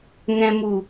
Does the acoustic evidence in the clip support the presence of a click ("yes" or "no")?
no